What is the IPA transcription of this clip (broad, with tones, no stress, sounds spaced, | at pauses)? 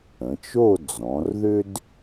ə̃˩˧ t͡ʃ o˥˧ d͡z ɔ̃˩˧ r ð ʏ˥ d